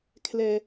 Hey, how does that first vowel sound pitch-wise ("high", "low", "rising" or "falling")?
low